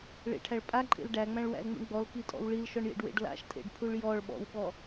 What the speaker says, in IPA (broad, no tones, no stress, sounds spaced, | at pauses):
ɭ ḛ ʈʰ æ ɭ pʼ a ǃʼ ḛ l ɖ æ ŋ͡m æ̃ ɭ w æ̰ l ŋ͡m ṵ ɳ ɡ͡b ɔ l k i tʼ ɔ̰ w ɭ i l ʃ ɔ ɳ j ḛ ɖ w ḛ ɖ l a̰ ʃ tʼ ḛ ɖ pʰ u ɭ j ɔ ɭ ɓ ɔ̰ w ɓ ɔ